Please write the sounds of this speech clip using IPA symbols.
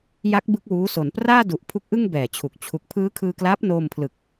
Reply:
j a˦˥ k̚ b ɯ˥˩ k̚ w uː˦˥ s o˩˦ n p r aː˥˩ d u˨˩ ʔ pʰ u˦˥ k̚ ʔ ɯ˥˩ ŋ b ɛː˨˩ t͡ɕʰ u˨˩ k̚ t͡ɕʰ u˨˩ k̚ pʰ ɯː˦˥ kʰ ɯː˧ k l aː˦˥ p̚ n oː˧ m pʰ l ɯ˨˩ k̚

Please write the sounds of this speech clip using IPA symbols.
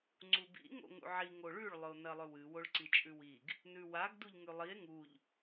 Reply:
ŋ͡ǀ u b ḭ ŋ o̰ ŋ ṵ ʕ i ŋ o ɭ ʉ ɭ lˠ ɵ o̯ n ɐ lˠ ɵ w ɨ w o ɭ ǀ i t͡ʃʼ ʉ w i ɡ | n ʉ w a ɡ d u ʎ ŋ ʉ lˠ i e̯ ŋ u ʎ

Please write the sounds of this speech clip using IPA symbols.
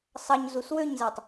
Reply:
sˤ ɑ ɲ z u s w ø ɲ z æ tˤ

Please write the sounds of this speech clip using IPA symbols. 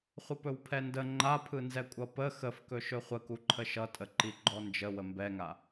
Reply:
χʷ ə p ɵ w pʰ ɛ n d ə ŋ͡ǃ a pʰ ɯ n z ɛ kʷʼ ʌ p ə x ə f k ɵ ʃ ɵ χʷ ə k u ǃʰ ə ʃ ʌ tʼ ə ǃ i ɡ͡ǃ ɔ n d͡ʒ ə w ə m b ɛ ŋ a

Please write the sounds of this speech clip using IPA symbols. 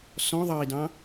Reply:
s ɔ̃ ðˤ ɑ i̯ d ɑ̃

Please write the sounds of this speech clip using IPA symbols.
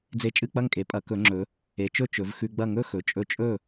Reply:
d͡z e˧ t͡ʃʼ ɨ˥˨ k͡p ɐ˥˨ ŋ kʼ e˩˧ pʼ ɐ˩˧ k ɵ˩˧ ŋ͡ǁ ɵ˩˧ | e˩˧ t͡ʃ ɵ˥˨ t͡ʃ ɵ˩˧ v x ʉ˧ ɡ͡b ɐ˥˨ ŋ ɵ˥˨ x ɵ˩˧ t͡ʃʼ ɵ˧ t͡ʃʼ ɵ˥˨

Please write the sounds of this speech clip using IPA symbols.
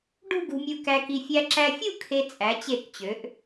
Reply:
ɖ ṳ˥˧ ɡ ṳ˧ mʲ u˧ k æ˧ k i˧ fʲ æ˧ ǁ æ˧ fʲ u˥˧ kʰ e˧ t͡sʼ æ˩˧ t͡ɕ e˧˩ k t͡ɕ ø˩˧ ʔ

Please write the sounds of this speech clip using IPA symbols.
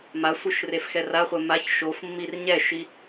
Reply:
m a sʷ ɯ ʃ r e f x ɛ r a χʷ ɛ m a ç ʃ o f mː i r ɲ ɛ ʃ i

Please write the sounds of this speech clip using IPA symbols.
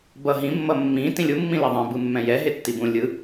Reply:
b ʌ ɦ ĩ mː ʌ mː ĩ t ĩ lʲ u mː ĩ l i ðˤ ẽ b ɯ mː ɛ̃ j ɛ ɦ e tː i b ũ lʲ ɯ

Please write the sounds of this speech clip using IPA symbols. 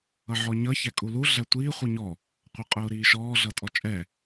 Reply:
ʌ ʕ ɔ ɲ ʌ ç æ kʼ u l u ɮ æ tʷ iː χʷ i ɲ ɔ | qʷ ə˞ qʼ ʊː ɾ iː ʃ ɔː ɮ ʌ tʼ ɔ t͡ʃʼ ɛ

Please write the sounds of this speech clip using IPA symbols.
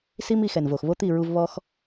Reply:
s i˦ m i˧ x ɛ˨ n v o˨ x β o˦ t̪ i˦˨ ɹ u˧ v β ɔ˦ x

